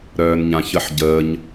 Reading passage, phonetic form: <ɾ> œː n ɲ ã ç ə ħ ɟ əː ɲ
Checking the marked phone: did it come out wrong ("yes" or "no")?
no